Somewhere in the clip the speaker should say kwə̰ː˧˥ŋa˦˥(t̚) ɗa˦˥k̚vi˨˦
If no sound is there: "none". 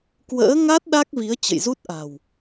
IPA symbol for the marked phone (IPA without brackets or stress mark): t̚